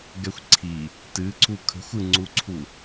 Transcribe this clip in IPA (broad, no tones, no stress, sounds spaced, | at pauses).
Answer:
ɡ ɛ xʷ ǀʰ i | t ɨ ǀ u kʰ ə̤ xʷ ɨ ŋ͡ǀ u ǀʰ u